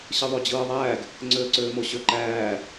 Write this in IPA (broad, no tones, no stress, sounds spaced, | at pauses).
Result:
ɕ ɯ ðˤ o d͡ʑ ɯː ðˤ æː ɡ | ŋ͡ǀ øː ǀ øː m o ɕ ø ǃ æː